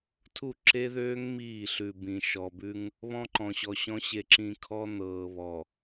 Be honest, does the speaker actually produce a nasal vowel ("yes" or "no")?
yes